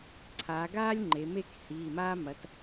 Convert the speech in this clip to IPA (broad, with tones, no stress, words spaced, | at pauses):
ǀʰaː˩˧ ɡaː˥lʲŋ͡ǃe˩˧ me˥khiː˩˧˩maː˥ mɐ˩˧t